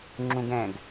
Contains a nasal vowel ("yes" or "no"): yes